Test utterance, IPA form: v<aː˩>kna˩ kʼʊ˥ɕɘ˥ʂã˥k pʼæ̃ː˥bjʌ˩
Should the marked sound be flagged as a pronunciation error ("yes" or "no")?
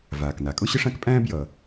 no